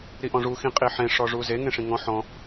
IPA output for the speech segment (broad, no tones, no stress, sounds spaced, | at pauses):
ɾ i ʔ ɔ̃ ʐ u x ĩ qʼ i ħ ẽ ʂ ɔ ʐ u z e ŋ ẽ ʂ ĩ ŋ ɔ̃ ħ ɔ̃